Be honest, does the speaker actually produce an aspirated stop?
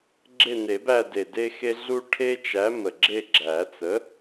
yes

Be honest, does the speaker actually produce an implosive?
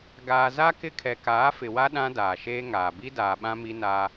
yes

